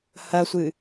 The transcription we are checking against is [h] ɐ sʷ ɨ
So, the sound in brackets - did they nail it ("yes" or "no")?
yes